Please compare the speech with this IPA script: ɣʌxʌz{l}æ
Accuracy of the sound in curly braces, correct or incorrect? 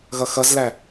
correct